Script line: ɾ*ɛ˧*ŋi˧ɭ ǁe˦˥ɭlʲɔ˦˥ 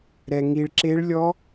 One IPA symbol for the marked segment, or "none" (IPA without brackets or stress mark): ɛ˧